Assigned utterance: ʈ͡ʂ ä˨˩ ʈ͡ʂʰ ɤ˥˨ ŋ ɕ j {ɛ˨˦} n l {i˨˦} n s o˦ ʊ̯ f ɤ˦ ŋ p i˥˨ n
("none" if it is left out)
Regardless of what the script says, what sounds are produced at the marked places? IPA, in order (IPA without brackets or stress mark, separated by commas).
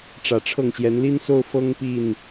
ɛ˨˦, i˦